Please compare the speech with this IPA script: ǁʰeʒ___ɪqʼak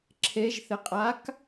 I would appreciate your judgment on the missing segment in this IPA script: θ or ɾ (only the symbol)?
θ